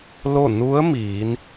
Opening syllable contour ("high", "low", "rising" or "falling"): falling